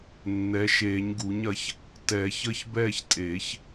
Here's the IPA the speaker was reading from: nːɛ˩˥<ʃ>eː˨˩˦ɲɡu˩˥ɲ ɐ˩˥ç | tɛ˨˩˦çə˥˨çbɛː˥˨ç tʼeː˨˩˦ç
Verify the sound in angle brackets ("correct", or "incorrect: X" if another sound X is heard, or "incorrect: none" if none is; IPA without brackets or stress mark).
correct